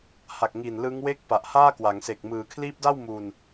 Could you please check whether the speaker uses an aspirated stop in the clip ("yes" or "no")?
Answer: yes